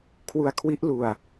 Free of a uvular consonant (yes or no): yes